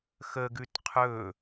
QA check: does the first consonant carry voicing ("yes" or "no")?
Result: no